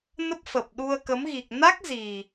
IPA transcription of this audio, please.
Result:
n ə˦˥ p̚ f ə˨˩ p̚ ɗ u˧ ə̯ k ə˨˦ m ɣ i˨˩ k̚ n a˦˥ k̚ z i˨˩

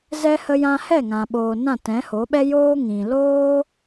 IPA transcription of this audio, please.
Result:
z ɛ˦ h ə˧ j ã˧ h ɛ˦˨ ŋ ã˨ ɓ oː˨ n ã˦˨ t ɛ̃˨˦ h o˨˦ ɓ ɛ˦ j oː˦ ŋ ĩ˨ l oː˦

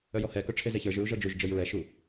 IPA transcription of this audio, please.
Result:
œ j ɔ h ɛ k œ ʈ͡ʂʰ e z e ç ə˞ ʒ ɹ u ʒ ɔ d͡ʒ u ʒ d͡ʒ œ j ɹ ɛ ʃ u

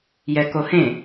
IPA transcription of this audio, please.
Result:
j ɛ k o h ẽ

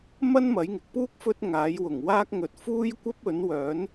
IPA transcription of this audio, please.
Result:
m ɐ˥ n m ɐ˨˥ j ŋ ɪ˨˥ k̚ p uː˥ k̚ f ɵ˥ t̚ ŋ aː˨˥ j w ʊ˨˩ ŋ w aː˥ k̚ ŋ ɵ˨ t̚ f uː˥ j kʷ ɐ˥ p̚ ɵ˨˥ n w œː˨˥ n

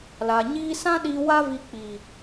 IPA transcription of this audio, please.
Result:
l a˨ ɲ iː˧ s ã˦ ɗ iː˧ w a˦ v i˧ k͡p i˨

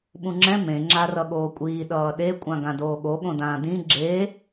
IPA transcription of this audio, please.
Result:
ɓ ũ ŋ͡ǁ ɛ̃ m ẽ ŋ͡ǁ a r ʌ ɠ oː kʷʼ iː ɗ ʌː ɗ e kʷʼ ã ɡ ã d oː ɠ o ɠ õ d ãː d ĩ ɡ͡ǁ e

